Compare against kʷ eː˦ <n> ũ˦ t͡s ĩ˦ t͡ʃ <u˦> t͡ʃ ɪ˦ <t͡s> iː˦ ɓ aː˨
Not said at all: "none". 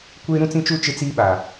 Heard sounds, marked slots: ɾ, u˦, t͡s

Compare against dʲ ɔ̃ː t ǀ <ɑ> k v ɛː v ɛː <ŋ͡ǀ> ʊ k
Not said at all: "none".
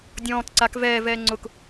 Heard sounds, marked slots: a, ŋ͡ǀ

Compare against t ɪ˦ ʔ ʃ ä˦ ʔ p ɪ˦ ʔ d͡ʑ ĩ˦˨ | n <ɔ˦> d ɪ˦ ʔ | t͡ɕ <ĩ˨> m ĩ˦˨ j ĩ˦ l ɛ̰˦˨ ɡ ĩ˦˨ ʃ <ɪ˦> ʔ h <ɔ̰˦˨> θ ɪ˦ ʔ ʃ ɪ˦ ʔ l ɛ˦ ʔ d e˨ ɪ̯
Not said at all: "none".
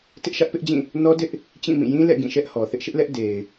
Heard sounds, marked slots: ɔ˦, ĩ˦˨, ɛ˦, ɔ˨

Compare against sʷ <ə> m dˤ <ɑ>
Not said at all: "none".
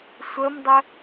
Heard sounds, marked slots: ə, ə

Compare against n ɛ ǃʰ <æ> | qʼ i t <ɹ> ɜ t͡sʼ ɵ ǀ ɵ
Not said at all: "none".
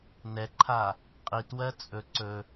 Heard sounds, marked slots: a, w

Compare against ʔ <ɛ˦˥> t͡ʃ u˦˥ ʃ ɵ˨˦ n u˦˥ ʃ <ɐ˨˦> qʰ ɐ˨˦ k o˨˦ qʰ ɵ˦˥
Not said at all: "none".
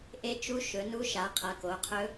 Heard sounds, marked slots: e˦˥, a˨˦

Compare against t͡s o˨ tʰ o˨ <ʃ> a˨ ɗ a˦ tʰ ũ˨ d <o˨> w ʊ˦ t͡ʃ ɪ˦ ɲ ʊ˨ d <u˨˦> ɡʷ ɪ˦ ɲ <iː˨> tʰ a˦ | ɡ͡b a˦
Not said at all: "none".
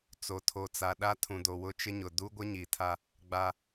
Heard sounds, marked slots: t͡s, o˨, u˦, i˨

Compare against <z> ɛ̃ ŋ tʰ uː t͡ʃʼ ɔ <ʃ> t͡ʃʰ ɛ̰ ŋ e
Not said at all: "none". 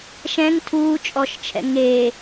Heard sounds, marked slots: ʃ, ʃ

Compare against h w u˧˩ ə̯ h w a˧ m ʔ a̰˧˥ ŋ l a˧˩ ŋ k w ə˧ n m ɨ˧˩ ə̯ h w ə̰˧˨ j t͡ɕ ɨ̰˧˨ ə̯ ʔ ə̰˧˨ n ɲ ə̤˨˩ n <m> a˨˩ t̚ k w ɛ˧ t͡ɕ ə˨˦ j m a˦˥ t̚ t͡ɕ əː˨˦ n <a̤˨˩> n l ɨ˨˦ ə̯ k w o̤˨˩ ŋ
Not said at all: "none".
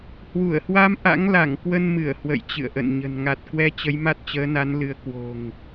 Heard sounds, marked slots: ŋ, a˨˦

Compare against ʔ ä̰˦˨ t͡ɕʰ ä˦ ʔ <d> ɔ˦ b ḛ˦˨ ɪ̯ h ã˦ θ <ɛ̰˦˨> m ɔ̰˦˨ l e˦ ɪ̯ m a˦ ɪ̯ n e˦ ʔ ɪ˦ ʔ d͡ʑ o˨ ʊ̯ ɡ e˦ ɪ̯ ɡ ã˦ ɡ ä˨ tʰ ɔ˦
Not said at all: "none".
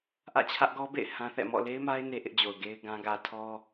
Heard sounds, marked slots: ɡ, ɛ̰˦˨

